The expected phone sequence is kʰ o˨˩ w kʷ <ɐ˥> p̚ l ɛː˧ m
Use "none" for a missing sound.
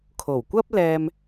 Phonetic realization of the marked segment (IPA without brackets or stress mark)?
ɐ˥